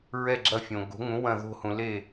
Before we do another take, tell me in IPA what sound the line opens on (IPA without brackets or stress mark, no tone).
ɹ